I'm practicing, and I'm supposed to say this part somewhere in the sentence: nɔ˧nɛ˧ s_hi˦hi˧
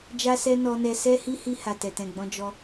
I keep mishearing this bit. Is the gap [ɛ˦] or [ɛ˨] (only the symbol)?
ɛ˦